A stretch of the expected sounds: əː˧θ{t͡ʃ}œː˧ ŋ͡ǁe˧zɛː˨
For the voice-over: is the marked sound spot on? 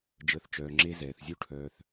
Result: yes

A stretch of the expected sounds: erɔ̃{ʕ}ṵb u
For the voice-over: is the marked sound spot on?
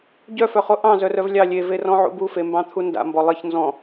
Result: yes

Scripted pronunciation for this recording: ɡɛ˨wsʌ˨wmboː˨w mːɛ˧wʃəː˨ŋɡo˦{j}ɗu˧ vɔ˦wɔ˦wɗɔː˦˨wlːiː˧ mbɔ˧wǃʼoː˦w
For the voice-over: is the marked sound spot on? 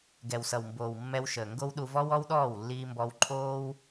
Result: no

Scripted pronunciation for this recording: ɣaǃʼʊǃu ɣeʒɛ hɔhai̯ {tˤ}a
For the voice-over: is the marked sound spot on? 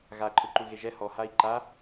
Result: no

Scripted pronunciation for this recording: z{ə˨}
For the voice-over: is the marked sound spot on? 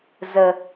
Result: yes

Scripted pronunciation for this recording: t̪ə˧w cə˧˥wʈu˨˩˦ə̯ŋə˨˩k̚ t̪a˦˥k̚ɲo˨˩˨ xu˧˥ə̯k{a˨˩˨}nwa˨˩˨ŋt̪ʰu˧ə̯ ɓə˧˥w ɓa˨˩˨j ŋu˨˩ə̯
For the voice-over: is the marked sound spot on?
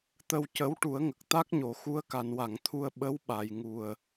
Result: yes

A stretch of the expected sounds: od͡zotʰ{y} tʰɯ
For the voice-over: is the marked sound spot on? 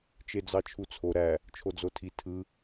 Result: no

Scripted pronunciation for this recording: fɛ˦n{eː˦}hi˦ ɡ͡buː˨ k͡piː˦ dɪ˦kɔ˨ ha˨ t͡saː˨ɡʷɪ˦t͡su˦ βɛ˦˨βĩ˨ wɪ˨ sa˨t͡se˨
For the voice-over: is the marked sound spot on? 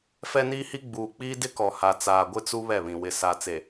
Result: no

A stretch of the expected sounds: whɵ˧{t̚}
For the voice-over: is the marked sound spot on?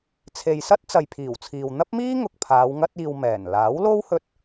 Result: yes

